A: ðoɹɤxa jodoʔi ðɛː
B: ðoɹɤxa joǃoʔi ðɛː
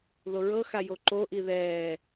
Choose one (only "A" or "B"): B